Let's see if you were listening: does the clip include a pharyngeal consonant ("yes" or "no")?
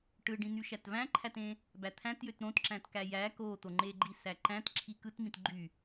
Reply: no